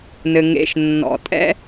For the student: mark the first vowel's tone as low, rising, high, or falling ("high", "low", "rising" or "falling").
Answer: low